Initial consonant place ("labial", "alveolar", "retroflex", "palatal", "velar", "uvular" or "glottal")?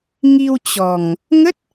velar